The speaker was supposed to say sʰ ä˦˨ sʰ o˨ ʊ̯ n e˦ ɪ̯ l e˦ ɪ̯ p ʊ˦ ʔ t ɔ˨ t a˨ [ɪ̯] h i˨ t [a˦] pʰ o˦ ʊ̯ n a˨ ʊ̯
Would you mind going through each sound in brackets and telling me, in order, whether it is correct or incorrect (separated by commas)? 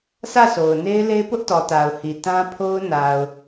incorrect, incorrect